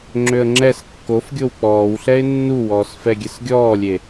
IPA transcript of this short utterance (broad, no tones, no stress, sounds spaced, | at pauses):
ŋ͡ǁ ø ə̯ ŋ͡ǁ ɛ s kː o f ɡʲ o w k͡p ɔː w ɬ ɛ ɪ̯ nː u w ɔː s f ɛ ɡʲ ɛ s ɡʲ ɔː lʲ e